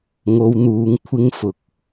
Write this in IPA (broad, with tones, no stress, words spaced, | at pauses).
ŋo˨˧wn̪uː˨˧ŋ kʷʰɪ˧ŋ fʊ˨k̚